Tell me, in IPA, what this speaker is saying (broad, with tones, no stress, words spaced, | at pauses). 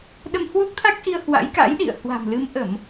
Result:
ɗə˧mhwo˦˥k̚t̪ʰa˦˥k̚ʔi˧ə̯ hwa̰˧˥jka̰˧˥jɗḭ˧˨ə̯ hwa̤˨˩mlɨ˨˦mʔə˧˩˨m